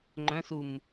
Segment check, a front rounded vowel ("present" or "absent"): present